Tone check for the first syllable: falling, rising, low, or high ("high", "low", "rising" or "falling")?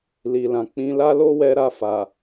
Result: low